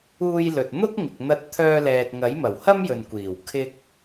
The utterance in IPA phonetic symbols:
uː˧ j l ɵ˨ t̚ n̪ ʊ˥ k̚ ŋ ɪ˨ k̚ n̪ ɐ˧ t̚ t̪ʰ œː˧ l ɛː˨ t̚ ŋ ɐ˨˥ j m ɐ˨˩ w h ɐ˥ m j ɵ˨ n kʷ iː˨˩ w kʰ ɪ˥ k̚

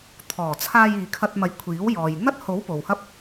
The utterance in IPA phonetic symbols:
t̪ʰ ɔː˨˩ t͡sʰ aː˧ j iː˨ kʰ ɐ˧ t̚ m ɐ˨˥ j kʷʰ iː˨˥ w j ɔː˨ j n̪ ɐ˥ t̚ h o˨˥ w p o˨ w h ɐ˥ p̚

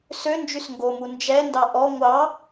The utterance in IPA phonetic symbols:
s ø n d͡ʒ y s ŋ ɡ o m u n d͡ʒ ɛ n d ɑ ʔ ɔ ŋʷ ɑ

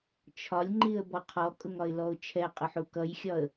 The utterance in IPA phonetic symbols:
t͡ʃʰ ɒ lʲ ŋ͡ǃ i ə̯ b ɔ qʰ ɔ kʼ ʊ ŋ ɒ ɪ̯ l ɔ ʊ̯ t͡ʃʰ ɛ qʼ ʊ ħ u k ʌ j xʲ ɒ ə̯

